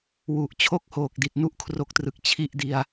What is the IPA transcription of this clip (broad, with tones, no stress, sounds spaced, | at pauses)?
w u˨˩ ʔ t͡ɕʰ o˦˥ k̚ h oː˨˩ k̚ d i˨˩ t̚ n u˥˩ ʔ kʰ r o˥˩ k̚ t r ɯ˨˩ k̚ t͡ɕʰ i˦˥ ʔ d i˨˩ a̯